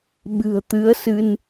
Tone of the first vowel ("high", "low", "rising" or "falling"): low